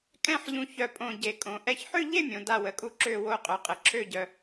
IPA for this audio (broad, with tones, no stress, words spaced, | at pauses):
kʼɛ̃˥˧ħʎũ˧˩ çœ˧˩pʼõ˧˩ ɟe˩ kʼõ˩ ʔɛ˧˩çħø˥˧ʎe˥˧mʲõ˩ da˧˩wə˩kʼu˧˩ ǁø˧˩wo˧˩qʼœ˩qʼə˩ ǁʰø˧˩ɟœ˩